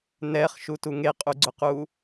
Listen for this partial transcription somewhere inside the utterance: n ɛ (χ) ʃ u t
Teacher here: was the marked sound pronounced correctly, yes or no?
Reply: yes